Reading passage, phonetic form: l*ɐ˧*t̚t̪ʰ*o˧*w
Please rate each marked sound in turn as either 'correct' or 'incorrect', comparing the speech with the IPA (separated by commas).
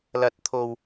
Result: correct, correct